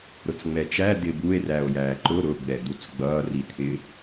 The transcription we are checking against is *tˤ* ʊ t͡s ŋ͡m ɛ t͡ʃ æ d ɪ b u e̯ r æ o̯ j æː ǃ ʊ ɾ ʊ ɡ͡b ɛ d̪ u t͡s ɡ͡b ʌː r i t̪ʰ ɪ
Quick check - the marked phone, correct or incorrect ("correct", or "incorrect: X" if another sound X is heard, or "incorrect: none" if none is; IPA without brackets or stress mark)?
incorrect: ɾ